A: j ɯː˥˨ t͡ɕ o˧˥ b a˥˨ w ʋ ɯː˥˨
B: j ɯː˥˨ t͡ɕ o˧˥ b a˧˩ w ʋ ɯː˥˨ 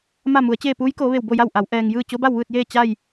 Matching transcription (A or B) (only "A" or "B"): A